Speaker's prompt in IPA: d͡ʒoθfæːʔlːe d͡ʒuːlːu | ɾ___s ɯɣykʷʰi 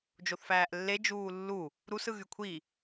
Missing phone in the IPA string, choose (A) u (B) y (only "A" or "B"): A